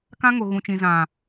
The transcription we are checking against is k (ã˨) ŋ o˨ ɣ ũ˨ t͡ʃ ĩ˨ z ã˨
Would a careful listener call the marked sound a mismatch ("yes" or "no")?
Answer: yes